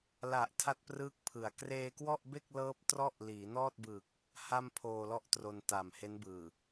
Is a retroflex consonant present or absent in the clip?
absent